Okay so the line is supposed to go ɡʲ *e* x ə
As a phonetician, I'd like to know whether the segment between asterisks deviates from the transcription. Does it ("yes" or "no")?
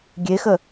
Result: no